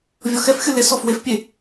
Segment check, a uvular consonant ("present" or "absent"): absent